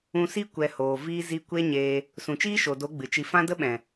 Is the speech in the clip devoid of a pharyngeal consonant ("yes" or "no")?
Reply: yes